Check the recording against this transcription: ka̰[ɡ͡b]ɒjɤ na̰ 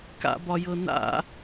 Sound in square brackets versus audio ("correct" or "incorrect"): incorrect